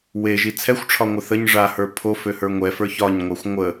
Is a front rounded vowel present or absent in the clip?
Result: present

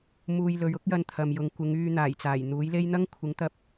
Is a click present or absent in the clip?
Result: absent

